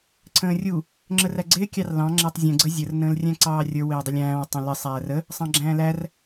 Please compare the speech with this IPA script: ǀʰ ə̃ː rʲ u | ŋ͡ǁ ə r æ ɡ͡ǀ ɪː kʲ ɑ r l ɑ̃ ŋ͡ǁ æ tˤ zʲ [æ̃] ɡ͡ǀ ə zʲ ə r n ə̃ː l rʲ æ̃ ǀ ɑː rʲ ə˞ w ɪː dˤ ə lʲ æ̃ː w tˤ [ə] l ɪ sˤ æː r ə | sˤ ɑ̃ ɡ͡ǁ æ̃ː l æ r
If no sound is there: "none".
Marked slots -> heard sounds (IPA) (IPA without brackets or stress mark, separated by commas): ə̃, ə̃